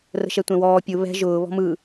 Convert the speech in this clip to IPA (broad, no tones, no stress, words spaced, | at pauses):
rə̤ʃɛtʷɛ̃wɔː pʲʊ βɛ̤ ʒʊː βɔ̤mɯ